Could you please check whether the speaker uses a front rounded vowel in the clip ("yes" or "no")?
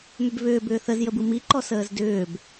yes